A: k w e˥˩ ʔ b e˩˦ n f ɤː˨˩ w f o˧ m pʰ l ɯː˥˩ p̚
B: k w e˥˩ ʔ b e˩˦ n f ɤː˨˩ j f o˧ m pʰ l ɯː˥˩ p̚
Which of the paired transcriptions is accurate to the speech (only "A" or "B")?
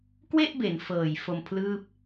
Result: B